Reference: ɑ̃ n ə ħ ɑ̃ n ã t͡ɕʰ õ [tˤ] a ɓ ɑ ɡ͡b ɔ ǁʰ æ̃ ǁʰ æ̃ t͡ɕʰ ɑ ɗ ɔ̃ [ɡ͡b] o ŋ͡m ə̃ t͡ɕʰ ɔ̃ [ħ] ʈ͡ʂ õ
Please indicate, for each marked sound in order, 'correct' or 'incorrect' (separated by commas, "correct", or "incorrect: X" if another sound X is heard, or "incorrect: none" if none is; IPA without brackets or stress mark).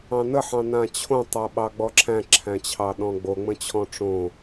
correct, correct, incorrect: none